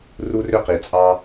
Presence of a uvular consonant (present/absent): present